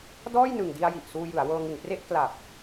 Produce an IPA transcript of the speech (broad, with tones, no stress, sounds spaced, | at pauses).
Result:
d ɔː˥˩ j n ɯ˨˩ ŋ d i˧ a̯ j i˨˩ ʔ s uː˧ j ɯ˩˦ a̯ w ɤː˧ ŋ ɯ˨˩ ŋ p r e˥˩ ʔ k l a˨˩ p̚